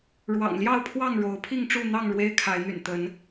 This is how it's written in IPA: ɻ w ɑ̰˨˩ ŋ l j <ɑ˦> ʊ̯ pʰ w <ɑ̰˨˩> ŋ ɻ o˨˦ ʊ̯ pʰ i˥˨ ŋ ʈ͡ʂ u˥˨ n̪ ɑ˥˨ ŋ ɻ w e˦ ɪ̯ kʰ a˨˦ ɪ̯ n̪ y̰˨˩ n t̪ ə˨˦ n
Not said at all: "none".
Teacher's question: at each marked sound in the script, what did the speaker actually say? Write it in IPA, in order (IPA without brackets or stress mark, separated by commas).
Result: ɑ˥˨, ɑ˥˨